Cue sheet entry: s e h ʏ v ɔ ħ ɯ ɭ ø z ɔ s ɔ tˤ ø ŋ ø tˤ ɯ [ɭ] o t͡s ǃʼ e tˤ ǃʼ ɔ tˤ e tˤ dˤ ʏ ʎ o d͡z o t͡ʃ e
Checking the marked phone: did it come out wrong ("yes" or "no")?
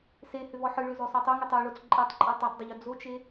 no